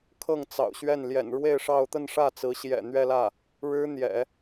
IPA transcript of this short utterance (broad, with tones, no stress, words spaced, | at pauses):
kʰɤ˥˩ŋt͡sɑ̰˨˩ʊ̯ɕɥɛ˥˩n ljɛ̰˨˩nɻwe˥˧ɪ̯ ʂɑ˥˧ʊ̯ t̪ə˥˧nʂä˥˩ t͡sɹ̩˧˥ɕjɛ̰˨˩n̪ɥɛ˥˧lä˥˩ | ɻɻ̩˥n̪jɛ̰˨˩˦